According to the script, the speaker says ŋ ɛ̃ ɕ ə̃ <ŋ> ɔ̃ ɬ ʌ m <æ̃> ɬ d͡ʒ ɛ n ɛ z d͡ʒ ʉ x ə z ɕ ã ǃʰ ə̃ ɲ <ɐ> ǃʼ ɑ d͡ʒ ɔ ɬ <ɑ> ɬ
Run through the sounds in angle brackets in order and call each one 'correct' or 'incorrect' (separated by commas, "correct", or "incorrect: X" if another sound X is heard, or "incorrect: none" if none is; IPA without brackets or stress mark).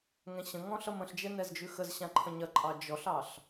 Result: correct, incorrect: ə̃, correct, correct